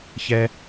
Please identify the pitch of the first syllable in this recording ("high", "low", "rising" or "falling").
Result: high